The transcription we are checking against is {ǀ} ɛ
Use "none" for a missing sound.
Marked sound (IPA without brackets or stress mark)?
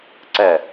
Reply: ǀ